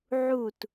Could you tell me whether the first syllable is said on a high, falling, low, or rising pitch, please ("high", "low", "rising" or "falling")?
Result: falling